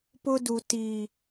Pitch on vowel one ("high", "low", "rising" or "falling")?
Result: high